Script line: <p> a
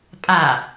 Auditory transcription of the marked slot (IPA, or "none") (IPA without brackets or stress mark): pʼ